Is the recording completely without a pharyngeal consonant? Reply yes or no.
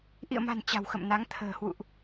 yes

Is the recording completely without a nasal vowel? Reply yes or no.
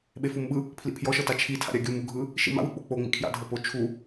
yes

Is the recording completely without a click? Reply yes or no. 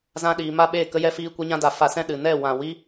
yes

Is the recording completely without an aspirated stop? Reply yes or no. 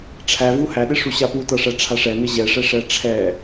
no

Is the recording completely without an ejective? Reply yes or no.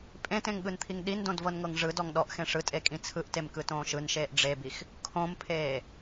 no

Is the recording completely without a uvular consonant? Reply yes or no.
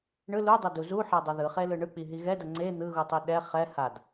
no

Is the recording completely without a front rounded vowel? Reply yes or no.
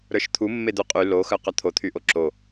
no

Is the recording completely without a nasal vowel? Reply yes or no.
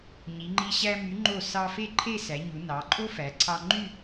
yes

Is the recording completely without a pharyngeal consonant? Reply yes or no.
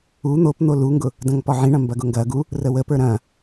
no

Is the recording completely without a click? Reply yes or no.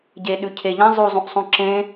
no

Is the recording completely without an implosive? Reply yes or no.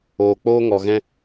yes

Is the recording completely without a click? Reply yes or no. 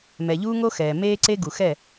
no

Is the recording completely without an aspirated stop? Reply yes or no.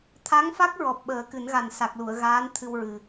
no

